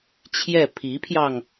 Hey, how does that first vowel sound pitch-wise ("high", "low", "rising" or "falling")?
falling